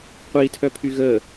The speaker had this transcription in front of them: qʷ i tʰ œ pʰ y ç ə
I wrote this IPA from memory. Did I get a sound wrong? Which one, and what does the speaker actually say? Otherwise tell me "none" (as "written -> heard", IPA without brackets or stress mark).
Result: ç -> ɣ